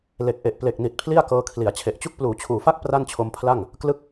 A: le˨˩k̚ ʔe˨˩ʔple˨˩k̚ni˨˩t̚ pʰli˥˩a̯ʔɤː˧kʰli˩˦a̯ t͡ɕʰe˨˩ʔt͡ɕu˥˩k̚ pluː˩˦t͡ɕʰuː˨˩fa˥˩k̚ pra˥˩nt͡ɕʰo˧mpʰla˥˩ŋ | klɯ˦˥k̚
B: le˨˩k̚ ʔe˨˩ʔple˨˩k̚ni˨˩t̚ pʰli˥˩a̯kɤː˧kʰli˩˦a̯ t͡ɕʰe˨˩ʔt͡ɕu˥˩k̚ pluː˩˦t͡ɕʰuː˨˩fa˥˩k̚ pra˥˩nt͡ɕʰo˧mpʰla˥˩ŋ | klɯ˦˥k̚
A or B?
B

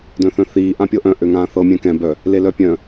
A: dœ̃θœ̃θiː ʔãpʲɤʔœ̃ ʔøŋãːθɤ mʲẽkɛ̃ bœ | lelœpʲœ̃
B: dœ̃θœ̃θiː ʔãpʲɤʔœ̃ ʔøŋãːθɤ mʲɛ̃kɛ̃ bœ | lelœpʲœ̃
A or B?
B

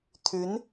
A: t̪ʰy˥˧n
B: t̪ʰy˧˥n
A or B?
B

